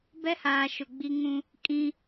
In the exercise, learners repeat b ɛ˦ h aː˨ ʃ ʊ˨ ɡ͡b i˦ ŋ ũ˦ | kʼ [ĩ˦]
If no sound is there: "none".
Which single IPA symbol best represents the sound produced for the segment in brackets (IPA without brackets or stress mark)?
ĩ˦